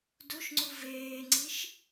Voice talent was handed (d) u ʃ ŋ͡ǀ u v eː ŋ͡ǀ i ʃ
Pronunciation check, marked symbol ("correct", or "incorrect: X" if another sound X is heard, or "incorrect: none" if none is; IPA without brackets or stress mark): correct